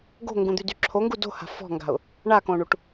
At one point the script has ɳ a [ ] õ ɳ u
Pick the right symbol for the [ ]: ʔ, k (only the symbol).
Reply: k